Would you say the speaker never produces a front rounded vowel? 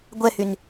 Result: no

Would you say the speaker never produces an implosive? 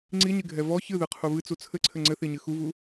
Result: yes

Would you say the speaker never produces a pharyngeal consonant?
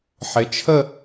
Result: no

